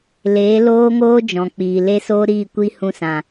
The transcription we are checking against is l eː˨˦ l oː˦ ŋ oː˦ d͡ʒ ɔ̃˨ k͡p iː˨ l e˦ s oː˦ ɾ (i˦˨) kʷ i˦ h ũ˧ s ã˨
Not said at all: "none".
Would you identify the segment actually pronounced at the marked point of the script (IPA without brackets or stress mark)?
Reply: iː˦˨